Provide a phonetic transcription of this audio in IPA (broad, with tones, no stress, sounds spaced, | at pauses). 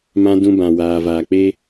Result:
m ã˧ d ũ˧ b ã˨ w aː˨ v aː˨ k͡p e˦